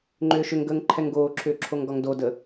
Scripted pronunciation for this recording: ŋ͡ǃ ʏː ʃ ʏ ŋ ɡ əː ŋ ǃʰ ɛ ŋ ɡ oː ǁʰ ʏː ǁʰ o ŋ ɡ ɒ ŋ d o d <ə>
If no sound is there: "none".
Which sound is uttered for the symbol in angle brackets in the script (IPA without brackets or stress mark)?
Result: ə